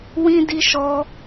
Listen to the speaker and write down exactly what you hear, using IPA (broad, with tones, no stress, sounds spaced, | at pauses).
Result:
w ĩ˧ d i˧ ʃ ɔ˧